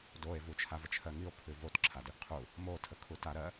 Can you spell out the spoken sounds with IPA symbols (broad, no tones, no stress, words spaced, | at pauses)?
doe̯ vut͡ʃʰavət͡ʃʰɜ ŋio̯pʰʉ votǁʰadʉɡ qʰu | motʰəkʰuta ɾɜ